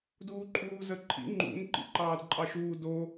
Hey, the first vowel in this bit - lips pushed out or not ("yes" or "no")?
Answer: yes